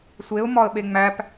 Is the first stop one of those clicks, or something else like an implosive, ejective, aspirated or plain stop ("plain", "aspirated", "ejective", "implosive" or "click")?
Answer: implosive